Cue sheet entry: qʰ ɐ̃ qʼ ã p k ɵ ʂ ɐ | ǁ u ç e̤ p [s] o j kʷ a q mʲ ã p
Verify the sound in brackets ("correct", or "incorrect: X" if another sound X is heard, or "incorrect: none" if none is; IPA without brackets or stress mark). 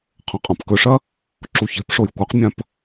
incorrect: ʂ